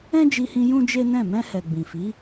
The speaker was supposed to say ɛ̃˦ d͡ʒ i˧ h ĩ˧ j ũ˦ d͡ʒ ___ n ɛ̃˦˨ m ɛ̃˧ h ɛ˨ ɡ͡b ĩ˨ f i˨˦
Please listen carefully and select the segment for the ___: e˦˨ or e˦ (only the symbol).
e˦